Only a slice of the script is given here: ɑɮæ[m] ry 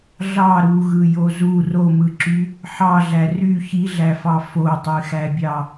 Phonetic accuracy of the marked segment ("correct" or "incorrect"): incorrect